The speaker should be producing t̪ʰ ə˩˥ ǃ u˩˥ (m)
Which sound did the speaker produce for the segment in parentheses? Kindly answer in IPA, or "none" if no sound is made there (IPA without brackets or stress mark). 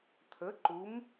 m